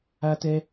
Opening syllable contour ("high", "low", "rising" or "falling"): high